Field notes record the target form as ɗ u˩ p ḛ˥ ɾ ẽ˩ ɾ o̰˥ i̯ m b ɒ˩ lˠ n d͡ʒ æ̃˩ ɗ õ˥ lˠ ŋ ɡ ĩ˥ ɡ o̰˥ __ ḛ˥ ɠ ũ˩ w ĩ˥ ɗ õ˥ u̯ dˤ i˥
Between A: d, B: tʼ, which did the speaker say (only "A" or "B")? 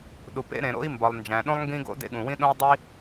A